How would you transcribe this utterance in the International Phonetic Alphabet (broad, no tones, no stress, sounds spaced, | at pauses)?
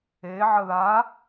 e ʕ ə ð a